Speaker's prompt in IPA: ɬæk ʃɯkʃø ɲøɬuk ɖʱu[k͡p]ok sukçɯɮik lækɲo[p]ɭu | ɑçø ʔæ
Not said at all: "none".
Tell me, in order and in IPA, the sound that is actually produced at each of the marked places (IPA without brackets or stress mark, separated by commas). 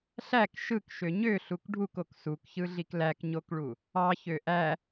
k, k